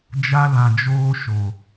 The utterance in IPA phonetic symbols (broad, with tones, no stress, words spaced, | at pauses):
d͡ʒa˧lã˨d͡ʒoː˧ ʃo˨